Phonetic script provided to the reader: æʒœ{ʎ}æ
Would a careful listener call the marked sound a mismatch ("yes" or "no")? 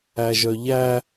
no